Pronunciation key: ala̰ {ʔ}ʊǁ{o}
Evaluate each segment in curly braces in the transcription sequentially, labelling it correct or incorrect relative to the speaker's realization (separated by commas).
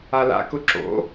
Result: incorrect, incorrect